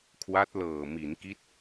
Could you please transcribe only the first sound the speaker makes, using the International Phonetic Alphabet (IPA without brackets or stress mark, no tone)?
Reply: kʰ